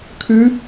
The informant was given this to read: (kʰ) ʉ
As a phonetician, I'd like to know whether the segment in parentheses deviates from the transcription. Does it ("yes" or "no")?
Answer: no